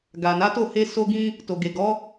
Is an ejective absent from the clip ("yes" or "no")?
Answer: yes